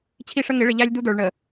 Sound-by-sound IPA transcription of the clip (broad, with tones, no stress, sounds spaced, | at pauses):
t͡ɕʰ i˦ ʂ ə˦ ŋ ɪ˨˦ ɭ ɪ˨ ʎ æ˦ lʲ d̪ u˦ d̪ ə˞˨ ɭ ɳ ə˨